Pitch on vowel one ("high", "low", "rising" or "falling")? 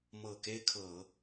low